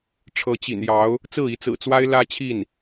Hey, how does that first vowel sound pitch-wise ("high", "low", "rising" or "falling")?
rising